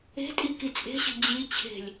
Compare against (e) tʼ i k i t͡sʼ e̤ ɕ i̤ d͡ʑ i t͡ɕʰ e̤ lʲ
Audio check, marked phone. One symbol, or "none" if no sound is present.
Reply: e̤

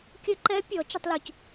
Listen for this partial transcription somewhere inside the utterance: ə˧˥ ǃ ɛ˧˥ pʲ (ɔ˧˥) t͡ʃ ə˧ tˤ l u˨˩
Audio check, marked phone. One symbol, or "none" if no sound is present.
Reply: ɔ˩˧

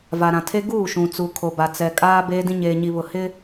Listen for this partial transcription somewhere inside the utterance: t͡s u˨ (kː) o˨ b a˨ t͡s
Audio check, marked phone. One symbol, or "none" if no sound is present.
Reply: kʰ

